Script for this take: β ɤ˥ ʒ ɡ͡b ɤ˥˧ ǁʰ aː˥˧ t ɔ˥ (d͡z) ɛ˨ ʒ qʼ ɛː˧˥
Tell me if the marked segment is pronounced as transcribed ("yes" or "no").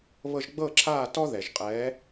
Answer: no